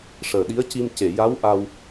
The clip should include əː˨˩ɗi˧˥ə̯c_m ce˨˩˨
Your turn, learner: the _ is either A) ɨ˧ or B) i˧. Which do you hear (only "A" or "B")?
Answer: B